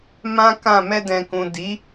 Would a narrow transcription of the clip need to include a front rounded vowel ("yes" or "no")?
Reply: no